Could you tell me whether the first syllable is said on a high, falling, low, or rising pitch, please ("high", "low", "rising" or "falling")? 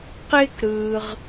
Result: high